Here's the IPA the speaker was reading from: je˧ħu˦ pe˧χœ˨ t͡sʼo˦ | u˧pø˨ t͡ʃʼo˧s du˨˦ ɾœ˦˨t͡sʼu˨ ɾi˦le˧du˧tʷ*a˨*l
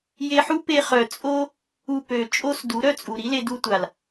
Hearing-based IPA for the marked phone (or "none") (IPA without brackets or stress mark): a˨